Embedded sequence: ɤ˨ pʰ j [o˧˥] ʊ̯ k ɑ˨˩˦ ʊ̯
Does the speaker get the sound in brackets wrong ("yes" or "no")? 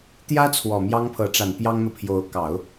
no